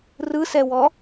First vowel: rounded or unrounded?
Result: unrounded